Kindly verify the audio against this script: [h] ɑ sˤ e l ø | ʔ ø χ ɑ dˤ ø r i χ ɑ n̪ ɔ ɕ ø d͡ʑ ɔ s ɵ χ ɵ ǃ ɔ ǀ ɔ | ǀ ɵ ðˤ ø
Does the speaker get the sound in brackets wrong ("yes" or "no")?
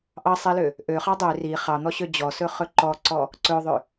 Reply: yes